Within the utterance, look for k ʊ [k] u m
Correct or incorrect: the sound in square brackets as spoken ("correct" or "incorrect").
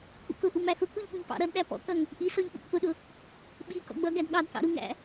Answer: incorrect